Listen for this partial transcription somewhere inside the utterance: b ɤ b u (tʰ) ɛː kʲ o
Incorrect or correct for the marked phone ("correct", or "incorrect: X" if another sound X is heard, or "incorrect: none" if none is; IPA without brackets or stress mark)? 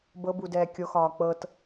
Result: incorrect: d